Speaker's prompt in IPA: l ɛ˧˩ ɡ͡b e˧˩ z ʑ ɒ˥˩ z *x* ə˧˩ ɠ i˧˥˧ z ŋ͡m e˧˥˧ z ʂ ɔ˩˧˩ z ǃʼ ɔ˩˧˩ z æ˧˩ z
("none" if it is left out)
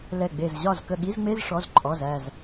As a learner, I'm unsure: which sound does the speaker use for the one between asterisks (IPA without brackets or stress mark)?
k